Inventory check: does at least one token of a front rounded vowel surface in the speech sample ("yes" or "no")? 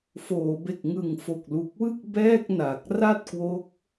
no